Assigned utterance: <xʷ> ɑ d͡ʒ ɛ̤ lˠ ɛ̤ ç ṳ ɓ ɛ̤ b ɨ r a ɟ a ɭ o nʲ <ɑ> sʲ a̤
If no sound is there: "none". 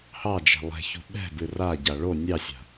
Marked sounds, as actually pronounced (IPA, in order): h, ɑ

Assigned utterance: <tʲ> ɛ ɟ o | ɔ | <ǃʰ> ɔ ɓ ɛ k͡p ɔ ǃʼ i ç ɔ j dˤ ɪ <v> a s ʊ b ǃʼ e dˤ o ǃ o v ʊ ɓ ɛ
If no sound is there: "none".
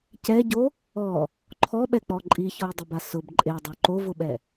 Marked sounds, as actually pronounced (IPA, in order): c, ǃʰ, b

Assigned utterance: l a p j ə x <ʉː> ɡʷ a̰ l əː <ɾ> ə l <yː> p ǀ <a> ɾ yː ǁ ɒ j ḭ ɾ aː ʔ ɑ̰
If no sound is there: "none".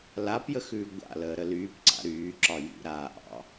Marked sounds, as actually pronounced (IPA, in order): ʉː, ɾ, yː, a̰

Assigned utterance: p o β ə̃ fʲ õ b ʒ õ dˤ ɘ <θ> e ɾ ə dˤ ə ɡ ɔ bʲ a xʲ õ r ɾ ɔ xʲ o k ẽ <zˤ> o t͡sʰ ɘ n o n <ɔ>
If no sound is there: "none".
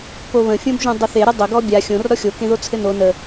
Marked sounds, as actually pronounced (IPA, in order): θ, ð, ə

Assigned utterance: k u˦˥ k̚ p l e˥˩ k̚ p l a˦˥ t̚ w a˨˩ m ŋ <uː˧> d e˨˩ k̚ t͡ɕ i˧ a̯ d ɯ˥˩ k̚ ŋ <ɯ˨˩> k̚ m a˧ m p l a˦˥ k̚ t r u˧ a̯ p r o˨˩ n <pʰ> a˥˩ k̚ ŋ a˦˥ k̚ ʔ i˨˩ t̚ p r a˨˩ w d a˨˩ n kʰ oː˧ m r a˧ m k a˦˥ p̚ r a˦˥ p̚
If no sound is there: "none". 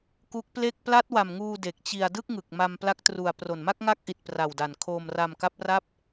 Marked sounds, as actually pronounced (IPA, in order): uː˧, ɯ˨˩, m

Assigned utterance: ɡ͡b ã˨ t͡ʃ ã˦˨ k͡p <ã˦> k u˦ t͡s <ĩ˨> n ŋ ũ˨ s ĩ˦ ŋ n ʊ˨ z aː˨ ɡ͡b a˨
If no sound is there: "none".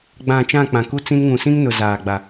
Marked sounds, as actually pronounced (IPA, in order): ã˨, ĩ˦

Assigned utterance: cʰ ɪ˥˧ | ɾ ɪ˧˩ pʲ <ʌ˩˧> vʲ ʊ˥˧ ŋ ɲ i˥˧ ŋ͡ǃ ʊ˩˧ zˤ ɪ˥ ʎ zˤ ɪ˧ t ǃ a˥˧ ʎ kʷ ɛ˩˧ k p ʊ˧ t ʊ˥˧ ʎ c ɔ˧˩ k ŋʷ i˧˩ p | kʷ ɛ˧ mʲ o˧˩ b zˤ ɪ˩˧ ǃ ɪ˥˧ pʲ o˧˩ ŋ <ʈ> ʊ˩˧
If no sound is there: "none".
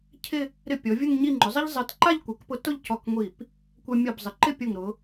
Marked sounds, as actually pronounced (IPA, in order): ɔ˩˧, ɾ

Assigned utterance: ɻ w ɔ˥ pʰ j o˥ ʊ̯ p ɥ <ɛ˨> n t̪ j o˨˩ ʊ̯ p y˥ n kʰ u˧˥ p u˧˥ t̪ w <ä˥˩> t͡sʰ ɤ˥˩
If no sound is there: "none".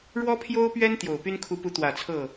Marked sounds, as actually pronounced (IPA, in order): ɛ˥, ä˨˩

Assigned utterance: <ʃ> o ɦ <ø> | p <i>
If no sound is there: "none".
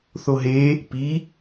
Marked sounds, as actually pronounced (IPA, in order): θ, e, i

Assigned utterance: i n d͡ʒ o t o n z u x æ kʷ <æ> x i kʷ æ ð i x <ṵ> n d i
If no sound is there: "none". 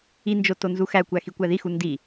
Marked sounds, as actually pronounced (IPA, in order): æ, u

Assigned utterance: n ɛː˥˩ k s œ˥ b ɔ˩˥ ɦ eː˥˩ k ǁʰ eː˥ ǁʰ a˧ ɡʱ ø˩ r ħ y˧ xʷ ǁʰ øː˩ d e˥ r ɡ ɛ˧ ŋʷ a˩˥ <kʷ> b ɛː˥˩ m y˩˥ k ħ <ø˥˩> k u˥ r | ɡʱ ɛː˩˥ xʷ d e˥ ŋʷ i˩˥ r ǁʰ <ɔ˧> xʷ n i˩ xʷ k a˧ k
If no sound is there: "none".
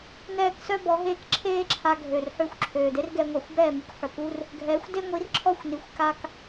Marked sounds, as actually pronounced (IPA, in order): xʷ, ø˩, ɔ˥˩

